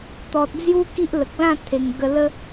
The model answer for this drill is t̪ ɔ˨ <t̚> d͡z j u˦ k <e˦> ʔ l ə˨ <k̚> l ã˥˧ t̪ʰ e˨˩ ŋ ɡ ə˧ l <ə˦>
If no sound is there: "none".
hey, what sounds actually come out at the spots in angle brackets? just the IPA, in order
t̚, i˦, k̚, ə˦

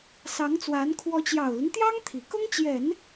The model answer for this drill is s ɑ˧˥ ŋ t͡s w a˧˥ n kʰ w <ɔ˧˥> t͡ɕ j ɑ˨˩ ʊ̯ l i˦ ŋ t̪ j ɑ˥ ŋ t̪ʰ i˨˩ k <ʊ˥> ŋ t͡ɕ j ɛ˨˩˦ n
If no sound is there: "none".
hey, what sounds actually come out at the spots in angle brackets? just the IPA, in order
ɔ˧˥, ʊ˥

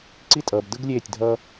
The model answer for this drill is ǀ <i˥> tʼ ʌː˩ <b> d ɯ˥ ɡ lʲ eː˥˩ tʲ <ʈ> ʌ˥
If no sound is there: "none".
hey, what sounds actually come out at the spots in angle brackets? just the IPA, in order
i˥, b, dʱ

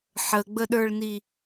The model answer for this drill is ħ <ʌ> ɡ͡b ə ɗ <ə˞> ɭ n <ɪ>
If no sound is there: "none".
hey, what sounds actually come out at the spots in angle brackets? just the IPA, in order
ə, ə˞, i

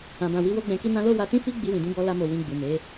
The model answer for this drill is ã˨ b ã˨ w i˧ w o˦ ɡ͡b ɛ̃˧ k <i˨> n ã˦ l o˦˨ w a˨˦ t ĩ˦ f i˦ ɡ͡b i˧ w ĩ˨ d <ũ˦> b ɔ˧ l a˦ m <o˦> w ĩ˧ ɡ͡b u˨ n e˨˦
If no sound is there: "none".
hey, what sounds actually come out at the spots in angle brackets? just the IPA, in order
i˦, ũ˨˦, o˧

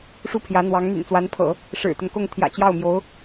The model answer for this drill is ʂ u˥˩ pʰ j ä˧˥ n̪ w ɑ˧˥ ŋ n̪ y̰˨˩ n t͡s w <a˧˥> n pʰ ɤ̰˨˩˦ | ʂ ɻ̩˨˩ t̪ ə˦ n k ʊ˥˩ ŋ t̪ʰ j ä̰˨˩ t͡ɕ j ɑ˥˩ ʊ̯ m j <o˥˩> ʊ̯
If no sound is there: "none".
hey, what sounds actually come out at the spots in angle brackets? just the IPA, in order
a˧˥, o˧˥

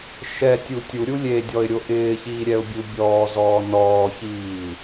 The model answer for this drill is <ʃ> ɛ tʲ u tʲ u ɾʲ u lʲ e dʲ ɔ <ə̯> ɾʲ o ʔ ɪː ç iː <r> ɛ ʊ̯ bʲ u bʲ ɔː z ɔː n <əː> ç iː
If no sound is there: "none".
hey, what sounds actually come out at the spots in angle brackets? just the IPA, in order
ʃ, ɪ̯, ɾʲ, ɔː

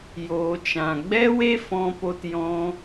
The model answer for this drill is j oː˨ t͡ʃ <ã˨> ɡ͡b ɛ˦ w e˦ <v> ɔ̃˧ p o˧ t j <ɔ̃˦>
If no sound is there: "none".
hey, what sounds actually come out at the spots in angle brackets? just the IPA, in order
ã˨, f, ɔ̃˧

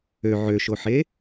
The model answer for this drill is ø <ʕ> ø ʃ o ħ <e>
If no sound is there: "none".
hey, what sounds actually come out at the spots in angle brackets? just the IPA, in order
ʕ, e

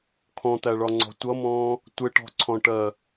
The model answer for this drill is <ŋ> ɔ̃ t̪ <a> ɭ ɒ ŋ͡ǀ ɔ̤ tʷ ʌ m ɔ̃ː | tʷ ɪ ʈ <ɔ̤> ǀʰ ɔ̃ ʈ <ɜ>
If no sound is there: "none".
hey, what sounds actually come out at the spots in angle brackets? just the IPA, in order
kʰ, æ, ɔ̤, ɜ

